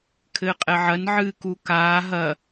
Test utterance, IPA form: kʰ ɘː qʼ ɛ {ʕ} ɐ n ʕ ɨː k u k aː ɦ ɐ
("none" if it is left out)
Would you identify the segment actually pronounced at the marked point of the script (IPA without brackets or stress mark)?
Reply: ʕ